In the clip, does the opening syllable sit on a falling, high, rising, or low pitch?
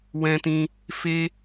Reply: high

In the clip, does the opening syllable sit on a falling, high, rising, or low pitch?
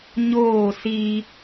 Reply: falling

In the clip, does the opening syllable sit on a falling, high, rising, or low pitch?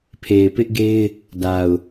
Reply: low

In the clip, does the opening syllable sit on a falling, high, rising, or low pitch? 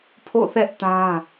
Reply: falling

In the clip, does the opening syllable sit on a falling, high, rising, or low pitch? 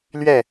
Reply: falling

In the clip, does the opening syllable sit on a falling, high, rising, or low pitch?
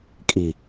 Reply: low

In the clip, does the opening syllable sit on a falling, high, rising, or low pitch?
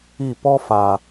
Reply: falling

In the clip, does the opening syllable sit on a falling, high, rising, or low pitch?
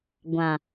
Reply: low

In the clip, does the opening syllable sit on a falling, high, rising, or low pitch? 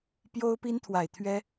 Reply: high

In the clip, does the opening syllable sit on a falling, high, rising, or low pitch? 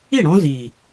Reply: falling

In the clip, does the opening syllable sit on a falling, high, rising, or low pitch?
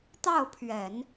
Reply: falling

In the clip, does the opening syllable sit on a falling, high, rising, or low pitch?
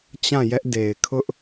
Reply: falling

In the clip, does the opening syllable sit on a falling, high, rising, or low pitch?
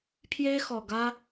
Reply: high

